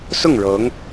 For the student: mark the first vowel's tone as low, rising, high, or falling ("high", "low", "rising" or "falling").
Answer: falling